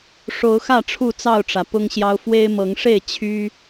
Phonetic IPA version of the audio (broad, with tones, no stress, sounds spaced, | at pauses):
ʂ o˨˦ ʊ̯ x ä˥˨ ʈ͡ʂʰ u˥˨ t͡s ɑ˥˨ ʊ̯ ʈ͡ʂ ä˩ p ʊ˦ ŋ ɕ j ɑ˦ ʊ̯ f w e˦ ɪ̯ m ɤ˨˦ ŋ ʂ e˥˨ ɪ̯ t͡ɕʰ y˦